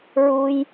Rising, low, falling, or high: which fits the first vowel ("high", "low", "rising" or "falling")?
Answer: low